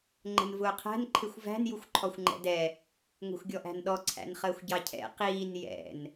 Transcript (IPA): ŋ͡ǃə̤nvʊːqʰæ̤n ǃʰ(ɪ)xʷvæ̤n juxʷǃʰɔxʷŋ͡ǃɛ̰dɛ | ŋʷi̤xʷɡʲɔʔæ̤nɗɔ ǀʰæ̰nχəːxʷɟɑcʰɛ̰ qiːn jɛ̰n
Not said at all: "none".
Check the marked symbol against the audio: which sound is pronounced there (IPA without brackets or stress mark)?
ɪ